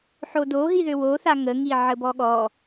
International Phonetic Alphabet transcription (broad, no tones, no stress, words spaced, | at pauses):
ħodoɦiðø woθa ŋəŋi ʕəbɔɠɔ